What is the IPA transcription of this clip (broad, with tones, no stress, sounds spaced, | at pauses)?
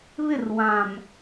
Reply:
β ɪ˦˨ r w ã˨ m